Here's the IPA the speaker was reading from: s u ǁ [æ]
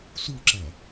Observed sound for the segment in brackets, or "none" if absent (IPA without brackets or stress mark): æ